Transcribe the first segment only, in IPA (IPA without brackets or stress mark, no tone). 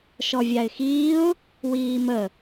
ʃ